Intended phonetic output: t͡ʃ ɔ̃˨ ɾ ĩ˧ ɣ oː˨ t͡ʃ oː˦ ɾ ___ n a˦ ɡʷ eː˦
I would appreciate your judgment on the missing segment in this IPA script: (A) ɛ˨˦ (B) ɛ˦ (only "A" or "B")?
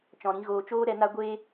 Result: A